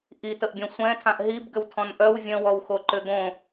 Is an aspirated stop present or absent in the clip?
present